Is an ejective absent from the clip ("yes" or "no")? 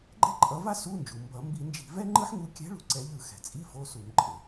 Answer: no